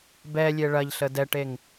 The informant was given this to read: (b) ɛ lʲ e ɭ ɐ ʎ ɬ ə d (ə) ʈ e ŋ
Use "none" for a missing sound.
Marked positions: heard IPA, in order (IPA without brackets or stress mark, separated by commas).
b, ɛ